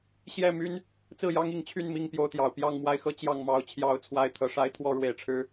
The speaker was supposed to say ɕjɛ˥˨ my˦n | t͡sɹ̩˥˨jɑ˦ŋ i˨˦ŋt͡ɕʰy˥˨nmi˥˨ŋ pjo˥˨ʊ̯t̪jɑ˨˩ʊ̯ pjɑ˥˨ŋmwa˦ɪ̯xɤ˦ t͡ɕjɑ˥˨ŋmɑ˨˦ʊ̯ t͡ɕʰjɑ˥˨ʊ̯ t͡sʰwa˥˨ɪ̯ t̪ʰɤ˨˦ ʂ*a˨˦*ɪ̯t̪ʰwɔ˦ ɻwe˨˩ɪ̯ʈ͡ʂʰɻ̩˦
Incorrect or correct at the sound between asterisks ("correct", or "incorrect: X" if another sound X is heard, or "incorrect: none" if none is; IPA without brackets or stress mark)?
incorrect: a˦